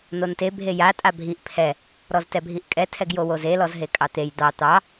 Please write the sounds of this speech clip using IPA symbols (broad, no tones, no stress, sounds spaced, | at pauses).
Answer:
n o n t e bʱ e j a tʼ a bʱ i ʔ pʰ ɛ | ɾ ɔ z t ɛ bʱ i ʔ kʼ ɛ tʰ ɛ ɡ j o w o z e l ɔ z ɦ e kʼ ɑ t̪ e j d̪ ɑ t̪ ɑ